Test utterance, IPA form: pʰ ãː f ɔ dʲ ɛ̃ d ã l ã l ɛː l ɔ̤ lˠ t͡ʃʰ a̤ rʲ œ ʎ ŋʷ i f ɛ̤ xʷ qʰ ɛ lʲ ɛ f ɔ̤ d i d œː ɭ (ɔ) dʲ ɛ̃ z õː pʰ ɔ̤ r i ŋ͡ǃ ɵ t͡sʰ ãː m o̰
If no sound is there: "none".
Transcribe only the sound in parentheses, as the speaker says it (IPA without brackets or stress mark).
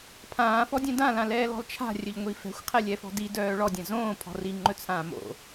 ɔ